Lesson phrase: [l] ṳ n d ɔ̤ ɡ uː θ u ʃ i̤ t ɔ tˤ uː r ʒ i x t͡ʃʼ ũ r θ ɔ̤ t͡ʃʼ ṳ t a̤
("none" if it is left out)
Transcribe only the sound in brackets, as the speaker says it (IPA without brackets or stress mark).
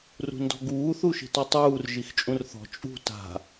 r